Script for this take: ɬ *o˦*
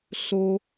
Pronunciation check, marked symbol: correct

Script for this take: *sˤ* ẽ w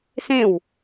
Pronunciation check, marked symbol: incorrect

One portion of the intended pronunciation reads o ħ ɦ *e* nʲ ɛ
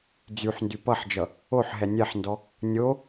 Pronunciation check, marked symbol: incorrect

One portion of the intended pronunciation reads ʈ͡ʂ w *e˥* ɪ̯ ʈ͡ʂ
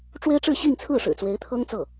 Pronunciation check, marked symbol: correct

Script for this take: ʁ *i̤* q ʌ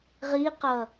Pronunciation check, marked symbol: incorrect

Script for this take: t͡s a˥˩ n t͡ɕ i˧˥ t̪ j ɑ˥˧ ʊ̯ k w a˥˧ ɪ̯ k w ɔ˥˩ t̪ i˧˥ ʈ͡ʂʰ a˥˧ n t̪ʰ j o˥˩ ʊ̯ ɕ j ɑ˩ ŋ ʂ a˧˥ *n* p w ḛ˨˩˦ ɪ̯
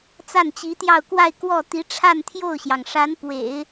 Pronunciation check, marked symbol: correct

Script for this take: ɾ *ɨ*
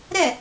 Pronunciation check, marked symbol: incorrect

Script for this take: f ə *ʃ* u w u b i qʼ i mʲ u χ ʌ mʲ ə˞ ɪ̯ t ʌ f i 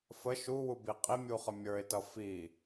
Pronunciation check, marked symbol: correct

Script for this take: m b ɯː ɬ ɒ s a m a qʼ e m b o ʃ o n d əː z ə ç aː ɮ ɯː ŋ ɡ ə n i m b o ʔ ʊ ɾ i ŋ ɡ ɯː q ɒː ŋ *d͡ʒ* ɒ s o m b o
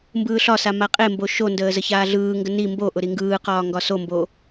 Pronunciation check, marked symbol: incorrect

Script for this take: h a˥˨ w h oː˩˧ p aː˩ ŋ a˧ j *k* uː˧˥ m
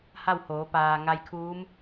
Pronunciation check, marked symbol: incorrect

